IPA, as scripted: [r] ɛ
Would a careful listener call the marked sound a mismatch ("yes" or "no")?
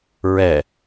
yes